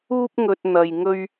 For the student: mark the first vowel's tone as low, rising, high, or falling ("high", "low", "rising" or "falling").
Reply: high